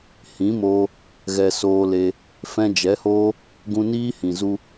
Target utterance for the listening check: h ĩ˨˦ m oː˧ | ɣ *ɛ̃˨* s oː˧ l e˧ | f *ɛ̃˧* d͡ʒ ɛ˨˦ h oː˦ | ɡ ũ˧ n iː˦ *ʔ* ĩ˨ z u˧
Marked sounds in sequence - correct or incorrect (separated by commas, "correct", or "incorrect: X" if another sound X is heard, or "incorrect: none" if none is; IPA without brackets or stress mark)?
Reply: incorrect: ɛ˨, correct, incorrect: h